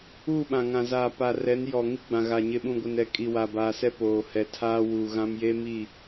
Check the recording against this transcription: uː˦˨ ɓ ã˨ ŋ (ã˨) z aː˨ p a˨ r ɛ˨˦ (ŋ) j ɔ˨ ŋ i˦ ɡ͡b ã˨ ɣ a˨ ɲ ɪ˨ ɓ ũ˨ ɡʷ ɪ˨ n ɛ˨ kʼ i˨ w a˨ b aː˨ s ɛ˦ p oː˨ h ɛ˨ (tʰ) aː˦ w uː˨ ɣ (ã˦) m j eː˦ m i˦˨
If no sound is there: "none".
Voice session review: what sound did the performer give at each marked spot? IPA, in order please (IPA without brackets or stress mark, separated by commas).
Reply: ã˨, n, tʰ, ã˦